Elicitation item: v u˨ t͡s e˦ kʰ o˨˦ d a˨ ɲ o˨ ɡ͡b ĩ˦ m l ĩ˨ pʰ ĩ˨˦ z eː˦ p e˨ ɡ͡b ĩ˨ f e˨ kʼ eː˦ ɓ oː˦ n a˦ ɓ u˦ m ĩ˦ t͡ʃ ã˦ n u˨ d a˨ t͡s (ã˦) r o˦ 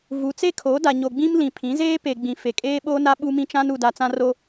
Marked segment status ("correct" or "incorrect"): correct